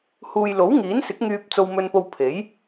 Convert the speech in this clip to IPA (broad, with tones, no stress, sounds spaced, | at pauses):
h uː˨ j l o˨˥ w ŋ iː˨˥ n s ɪ˨˥ k̚ ŋ yː˧ p̚ t͡s o˧ w m ɵ˧ n p o˧ w pʰ e˨˥ j